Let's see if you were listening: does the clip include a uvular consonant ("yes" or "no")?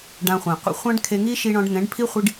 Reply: yes